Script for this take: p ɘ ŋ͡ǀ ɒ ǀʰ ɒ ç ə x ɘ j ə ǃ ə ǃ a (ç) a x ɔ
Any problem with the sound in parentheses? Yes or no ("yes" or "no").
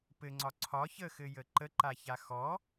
no